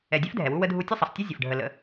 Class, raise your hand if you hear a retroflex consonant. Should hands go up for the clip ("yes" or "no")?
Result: yes